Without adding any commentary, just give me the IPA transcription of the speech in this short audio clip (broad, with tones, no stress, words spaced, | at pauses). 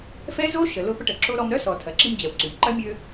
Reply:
fɛ˥zo˥ ʃə˨lʊ˦ pə˦ʈə˨ǁo˥ɾɔ˦m ɾœ˥sɔ˨ tʰɐ˨ǁi˦md͡ʑɛ˨w ǀy˩mǃɐ˥mʲø˦